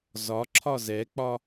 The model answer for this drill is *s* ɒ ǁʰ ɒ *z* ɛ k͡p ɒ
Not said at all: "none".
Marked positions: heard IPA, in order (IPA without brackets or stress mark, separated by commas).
z, z